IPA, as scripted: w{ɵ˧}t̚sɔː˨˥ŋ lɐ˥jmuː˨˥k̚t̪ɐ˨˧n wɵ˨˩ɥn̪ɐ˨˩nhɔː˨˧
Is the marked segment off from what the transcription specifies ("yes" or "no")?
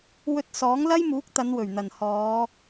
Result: no